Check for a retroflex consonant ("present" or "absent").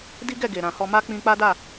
absent